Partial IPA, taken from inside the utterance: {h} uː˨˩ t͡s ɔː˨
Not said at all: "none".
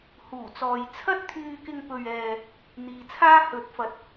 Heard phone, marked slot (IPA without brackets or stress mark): h